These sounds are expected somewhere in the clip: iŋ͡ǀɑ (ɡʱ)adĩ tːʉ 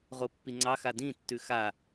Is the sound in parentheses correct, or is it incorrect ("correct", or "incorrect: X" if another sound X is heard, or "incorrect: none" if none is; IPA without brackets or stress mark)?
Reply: incorrect: x